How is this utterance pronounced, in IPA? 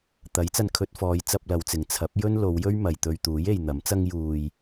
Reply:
t̪ ɐ˨˥ j t͡s ɐ˧ n kʰ ɵ˧ t̚ f ɔː˨˧ j t͡s ɐ˧ p̚ l ɐ˨˧ w t͡s ɪ˨ ŋ t͡sʰ ɐ˨˥ p̚ j ɵ˥ n l o˨˧ w j ɵ˥ ɥ m ɐ˨ j t̪ ɵ˧ ɥ t̪ uː˨˥ j e˨ j n̪ ɐ˨˥ m t͡s ɐ˥ ŋ j uː˧ j

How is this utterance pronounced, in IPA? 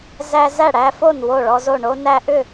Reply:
z æ˦ z æ˥˨ ɽ æ˦ f o˥˨ n w o˥˨ ɭ ɔ˦ z o˥˨ ɳ o˦ n æ˦ ʔ ʏ˥˨

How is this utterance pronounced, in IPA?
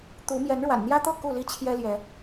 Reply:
t̪ u˨˦ m j ɛ˨˦ n ɻ w a̰˨˩ n n̪ j ä˦ t̪ ɤ˥˨ k u˥˨ l i˦ t͡ɕʰ j ɛ˦ l j ɛ˨˦

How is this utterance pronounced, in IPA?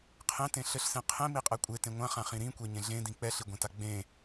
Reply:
qʰ ẽ t ẽ ɬ ɘ ɬ s ẽ qʰ ẽ m i qʼ ɛ kʷʼ e t ẽ ŋʷ ã χ ã χ ĩ ɾ ĩ kʷ e ɲ ẽ ɮ ẽ d ĩ k͡p ɛ ɬ i ɡʷ ẽ t a ɡ͡b ẽ

